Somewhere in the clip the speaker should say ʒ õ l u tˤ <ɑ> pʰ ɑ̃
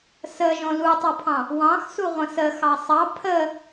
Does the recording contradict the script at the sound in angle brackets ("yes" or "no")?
no